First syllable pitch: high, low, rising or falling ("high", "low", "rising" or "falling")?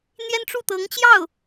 high